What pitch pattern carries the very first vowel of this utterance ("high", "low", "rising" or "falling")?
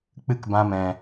high